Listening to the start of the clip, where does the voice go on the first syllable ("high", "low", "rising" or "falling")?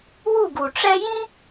falling